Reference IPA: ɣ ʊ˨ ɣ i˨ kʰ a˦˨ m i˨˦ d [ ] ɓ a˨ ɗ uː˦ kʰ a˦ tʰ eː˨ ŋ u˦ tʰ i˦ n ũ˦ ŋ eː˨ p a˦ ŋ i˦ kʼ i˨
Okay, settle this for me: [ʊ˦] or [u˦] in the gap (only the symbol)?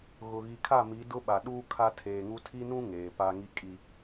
ʊ˦